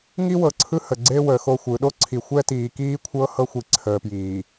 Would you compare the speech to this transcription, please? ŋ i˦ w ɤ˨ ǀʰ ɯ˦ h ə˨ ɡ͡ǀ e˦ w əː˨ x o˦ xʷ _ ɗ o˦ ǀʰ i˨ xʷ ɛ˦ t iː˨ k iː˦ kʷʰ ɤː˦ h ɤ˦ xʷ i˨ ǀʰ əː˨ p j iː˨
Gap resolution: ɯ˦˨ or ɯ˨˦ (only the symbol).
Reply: ɯ˨˦